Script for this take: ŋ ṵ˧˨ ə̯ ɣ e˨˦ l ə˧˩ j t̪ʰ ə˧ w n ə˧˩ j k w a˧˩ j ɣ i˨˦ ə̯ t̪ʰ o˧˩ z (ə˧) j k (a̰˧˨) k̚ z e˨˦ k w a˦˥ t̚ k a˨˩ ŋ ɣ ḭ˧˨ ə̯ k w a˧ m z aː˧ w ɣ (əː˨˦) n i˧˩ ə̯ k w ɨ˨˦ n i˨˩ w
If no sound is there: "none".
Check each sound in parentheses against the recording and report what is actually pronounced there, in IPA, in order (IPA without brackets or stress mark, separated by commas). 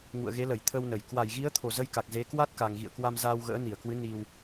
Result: ə˧, a˨˩, ə̰ː˧˥